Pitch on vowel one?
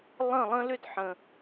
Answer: falling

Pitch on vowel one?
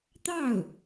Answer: falling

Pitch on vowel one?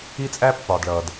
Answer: high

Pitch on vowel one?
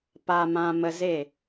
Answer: low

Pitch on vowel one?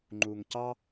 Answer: low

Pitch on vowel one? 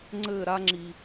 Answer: falling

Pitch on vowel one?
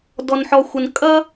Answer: low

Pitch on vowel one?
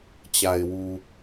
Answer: low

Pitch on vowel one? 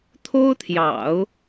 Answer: high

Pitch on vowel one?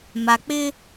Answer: low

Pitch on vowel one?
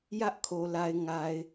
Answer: high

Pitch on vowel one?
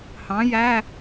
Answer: rising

